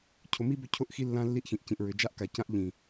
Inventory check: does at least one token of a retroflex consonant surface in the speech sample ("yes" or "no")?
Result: no